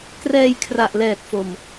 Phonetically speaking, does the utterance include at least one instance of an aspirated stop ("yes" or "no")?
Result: yes